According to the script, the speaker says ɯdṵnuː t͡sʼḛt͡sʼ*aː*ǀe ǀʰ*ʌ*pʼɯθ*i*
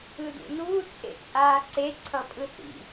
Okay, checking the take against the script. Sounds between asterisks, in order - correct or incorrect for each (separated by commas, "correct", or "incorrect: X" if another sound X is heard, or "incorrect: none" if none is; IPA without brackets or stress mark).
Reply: correct, correct, incorrect: ḭ